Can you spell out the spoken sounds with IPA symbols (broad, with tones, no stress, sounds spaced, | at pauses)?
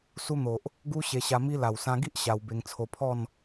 s u˧ n̪ o˨ ʔ | ɡ u˦ ɕ e˧ ɕ a˧ m i˦ l a˨˩ w s ã˧ ɡ i˦ ʔ ɕ a˧ w b e˧ ŋ t͡sʰ o˧ pʰ ɔ˥˧ n